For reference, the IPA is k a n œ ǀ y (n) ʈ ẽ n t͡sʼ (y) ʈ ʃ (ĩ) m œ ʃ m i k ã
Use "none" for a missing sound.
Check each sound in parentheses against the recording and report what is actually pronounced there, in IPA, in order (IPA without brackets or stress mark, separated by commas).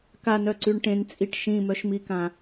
ɳ, i, ĩ